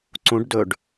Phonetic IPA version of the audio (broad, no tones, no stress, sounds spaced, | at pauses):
ǀ ũ ɖ d ɵ ɖ